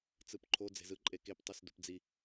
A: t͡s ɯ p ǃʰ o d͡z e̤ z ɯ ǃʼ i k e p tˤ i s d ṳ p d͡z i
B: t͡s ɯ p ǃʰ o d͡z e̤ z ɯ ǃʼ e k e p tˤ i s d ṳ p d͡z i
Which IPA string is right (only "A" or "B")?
B